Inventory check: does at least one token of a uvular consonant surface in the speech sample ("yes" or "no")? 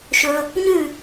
no